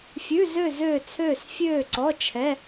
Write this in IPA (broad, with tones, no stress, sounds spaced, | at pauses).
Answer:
fʲ ʉ˧˥˧ z ø˥˧ z øː˥˧ t͡sʰ øː˥˧ s fʲ øː˥˧ ǀ ɔ˧˥˧ t͡ʃʰ ɛ˧˥˧